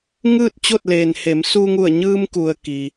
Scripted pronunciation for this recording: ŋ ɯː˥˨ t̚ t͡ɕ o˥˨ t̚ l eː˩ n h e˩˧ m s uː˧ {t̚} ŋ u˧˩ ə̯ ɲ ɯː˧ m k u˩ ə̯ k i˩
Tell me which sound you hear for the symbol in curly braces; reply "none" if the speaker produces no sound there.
none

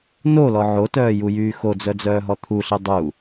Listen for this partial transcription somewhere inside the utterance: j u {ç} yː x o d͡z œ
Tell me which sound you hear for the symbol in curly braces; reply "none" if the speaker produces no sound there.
j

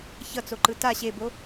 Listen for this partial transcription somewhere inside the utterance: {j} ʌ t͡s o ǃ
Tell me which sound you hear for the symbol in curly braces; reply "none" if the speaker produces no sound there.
ç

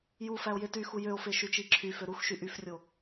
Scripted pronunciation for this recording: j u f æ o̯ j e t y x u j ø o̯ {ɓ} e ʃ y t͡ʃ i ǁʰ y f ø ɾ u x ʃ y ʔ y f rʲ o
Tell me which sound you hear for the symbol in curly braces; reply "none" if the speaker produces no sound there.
f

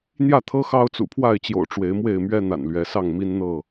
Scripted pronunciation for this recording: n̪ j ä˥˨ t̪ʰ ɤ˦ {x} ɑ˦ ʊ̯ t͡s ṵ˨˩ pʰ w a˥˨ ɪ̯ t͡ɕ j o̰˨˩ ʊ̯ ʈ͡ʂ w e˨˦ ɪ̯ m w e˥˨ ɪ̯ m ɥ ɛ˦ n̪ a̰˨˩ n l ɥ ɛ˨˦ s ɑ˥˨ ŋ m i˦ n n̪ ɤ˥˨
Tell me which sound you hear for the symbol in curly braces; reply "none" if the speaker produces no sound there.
x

